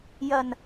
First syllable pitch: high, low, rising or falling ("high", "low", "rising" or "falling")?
low